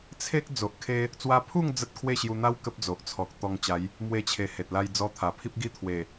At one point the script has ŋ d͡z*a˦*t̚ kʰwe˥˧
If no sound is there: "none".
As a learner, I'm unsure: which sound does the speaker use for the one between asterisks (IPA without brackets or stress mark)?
ə˦